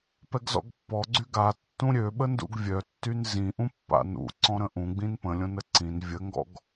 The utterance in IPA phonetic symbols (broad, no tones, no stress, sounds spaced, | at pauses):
p ɛ ɡ z ɔ̰ ɡ pː ɔ ɡ͡ǀ y ɡ a tː ũ ɾʲ ø ɓ ə n d ṵ ɡ vʲ œ tː y n z ĩ ʔ ũ pː a̰ n ṵ ǀ ɔ̃ ɾ ə̃ ʔ ũ ɡ͡b ĩ n p ə̃ lʲ õ n ə ǀ ĩ n vʲ ə ŋ ɡ ɔ̰ ɡ